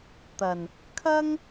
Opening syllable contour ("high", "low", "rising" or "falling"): low